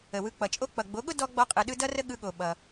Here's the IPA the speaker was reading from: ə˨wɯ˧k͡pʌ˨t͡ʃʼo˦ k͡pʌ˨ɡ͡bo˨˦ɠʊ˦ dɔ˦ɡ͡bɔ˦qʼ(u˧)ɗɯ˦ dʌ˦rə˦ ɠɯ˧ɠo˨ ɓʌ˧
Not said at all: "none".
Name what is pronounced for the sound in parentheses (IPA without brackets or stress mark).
ɯ˧